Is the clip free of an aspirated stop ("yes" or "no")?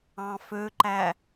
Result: yes